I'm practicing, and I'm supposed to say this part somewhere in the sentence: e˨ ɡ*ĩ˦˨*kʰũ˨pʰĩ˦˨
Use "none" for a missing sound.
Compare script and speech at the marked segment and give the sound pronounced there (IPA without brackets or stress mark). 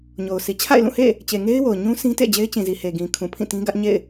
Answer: ĩ˨